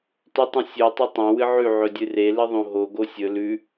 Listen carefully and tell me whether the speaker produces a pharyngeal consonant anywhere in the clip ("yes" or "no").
yes